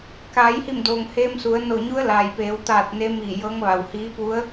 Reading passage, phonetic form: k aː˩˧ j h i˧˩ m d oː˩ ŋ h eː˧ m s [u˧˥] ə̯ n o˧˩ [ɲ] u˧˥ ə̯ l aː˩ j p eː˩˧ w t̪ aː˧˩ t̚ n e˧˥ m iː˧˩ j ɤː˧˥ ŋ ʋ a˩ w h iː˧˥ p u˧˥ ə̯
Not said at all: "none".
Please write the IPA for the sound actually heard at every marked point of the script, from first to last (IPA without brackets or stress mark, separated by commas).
u˩˧, ɲ